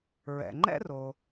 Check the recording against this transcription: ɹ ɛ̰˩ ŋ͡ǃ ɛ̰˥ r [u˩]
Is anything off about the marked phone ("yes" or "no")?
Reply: yes